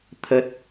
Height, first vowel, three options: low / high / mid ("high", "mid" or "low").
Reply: mid